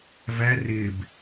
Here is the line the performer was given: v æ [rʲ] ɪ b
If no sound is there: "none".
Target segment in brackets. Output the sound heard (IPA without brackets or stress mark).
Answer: r